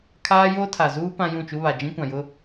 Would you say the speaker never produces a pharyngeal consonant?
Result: yes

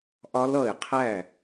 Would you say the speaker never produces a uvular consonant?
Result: no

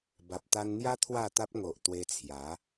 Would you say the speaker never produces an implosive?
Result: yes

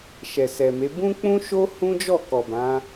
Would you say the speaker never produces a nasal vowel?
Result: no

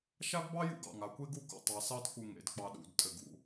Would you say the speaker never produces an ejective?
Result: no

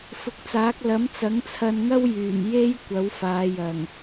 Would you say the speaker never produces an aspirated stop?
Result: no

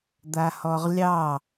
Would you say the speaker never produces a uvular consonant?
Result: no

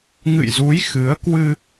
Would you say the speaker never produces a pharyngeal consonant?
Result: yes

